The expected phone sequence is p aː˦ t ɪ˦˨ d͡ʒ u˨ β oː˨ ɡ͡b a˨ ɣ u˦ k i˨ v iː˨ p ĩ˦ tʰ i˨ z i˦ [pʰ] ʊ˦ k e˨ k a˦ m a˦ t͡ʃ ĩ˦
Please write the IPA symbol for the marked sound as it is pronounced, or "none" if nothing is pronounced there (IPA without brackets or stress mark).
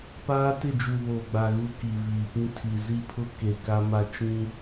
pʰ